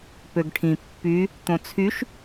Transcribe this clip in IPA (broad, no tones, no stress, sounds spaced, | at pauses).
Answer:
p ø ɡ ʈʰ ĩ pː y | t̪ õ t͡sʰ y ʃ